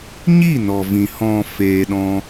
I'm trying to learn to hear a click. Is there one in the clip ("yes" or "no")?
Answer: no